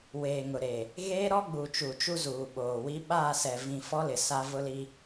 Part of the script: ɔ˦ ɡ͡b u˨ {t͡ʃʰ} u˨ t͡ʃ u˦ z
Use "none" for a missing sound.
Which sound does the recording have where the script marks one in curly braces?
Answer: t͡ʃ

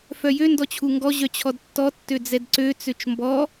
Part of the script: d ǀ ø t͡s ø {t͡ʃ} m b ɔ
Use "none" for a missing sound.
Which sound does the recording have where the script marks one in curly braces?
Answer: t͡ʃ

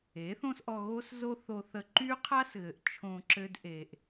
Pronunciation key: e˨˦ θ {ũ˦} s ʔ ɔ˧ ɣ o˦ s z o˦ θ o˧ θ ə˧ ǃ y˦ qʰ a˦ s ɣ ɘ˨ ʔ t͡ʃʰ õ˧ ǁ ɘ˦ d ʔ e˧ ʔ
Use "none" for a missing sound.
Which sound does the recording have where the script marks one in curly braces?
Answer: õ˦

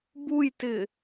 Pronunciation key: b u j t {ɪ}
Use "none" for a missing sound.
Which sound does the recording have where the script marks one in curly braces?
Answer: ɪ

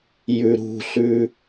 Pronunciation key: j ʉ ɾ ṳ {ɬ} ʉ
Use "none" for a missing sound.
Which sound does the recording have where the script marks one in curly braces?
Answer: ɬ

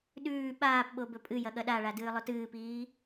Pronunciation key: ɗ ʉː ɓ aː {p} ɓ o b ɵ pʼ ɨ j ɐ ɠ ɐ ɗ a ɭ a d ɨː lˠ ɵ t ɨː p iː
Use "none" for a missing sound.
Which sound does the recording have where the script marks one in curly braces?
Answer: p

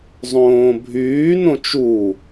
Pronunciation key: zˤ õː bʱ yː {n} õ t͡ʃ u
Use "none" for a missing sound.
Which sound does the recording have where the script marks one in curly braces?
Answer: n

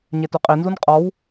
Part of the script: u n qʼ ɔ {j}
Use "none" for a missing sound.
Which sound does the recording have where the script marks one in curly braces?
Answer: w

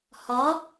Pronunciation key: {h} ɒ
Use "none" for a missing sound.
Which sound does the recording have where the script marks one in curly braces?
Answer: h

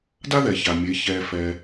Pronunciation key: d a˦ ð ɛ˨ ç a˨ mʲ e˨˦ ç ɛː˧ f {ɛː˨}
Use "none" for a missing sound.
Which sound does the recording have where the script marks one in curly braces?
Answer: ɛː˧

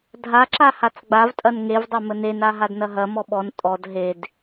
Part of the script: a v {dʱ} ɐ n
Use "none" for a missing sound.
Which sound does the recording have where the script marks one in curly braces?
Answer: tʼ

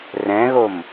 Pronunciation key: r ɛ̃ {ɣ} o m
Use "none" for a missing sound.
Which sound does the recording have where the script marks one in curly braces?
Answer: ɣ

